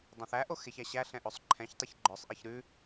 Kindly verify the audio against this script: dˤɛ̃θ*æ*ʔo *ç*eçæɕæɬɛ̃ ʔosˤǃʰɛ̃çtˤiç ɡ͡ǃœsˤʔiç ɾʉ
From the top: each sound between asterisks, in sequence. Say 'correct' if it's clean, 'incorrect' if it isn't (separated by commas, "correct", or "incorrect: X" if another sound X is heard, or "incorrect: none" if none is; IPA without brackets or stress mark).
correct, incorrect: x